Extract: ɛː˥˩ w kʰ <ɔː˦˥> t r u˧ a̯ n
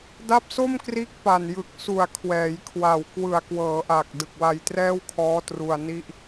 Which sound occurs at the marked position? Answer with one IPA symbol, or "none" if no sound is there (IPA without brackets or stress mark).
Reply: ɔː˦˥